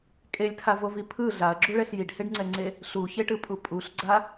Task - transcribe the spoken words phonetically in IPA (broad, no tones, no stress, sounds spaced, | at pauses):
kʼ e lʲ tʰ a v o v i pʰ ɯ ɮ a ɐ̯ ɡ͡ǁ u ɭ ɛ ɬ j i ɖ h e ɖ ŋ͡ǀ ɛ ŋ͡ǀ e | ɬ u ç e ʈ ɯ pʼ u pʼ u ɬ ɡ͡ǀ a